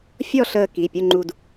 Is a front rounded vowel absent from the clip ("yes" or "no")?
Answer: yes